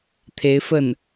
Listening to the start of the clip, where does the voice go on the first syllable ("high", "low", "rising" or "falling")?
rising